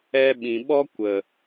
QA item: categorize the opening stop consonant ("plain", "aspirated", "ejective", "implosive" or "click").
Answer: implosive